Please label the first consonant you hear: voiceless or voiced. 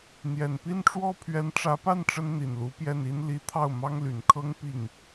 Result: voiced